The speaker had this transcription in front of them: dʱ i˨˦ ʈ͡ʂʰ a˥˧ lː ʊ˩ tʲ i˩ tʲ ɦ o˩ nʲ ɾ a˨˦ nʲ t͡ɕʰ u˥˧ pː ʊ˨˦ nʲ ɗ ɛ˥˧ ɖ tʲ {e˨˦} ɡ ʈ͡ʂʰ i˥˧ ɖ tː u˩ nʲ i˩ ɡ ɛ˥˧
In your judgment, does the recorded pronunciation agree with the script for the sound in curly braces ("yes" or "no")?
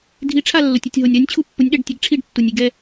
yes